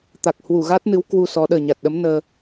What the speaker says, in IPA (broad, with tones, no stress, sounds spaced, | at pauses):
t̪ a˨˩ k̚ h w u˧˩ ɣ a˦˥ t̚ n ɨ˨˦ w k w u˧ s ɔ˨˦ ɗ əː˨˩ ɲ a˨˩ t̚ ɗ ə˨˦ m n əː˧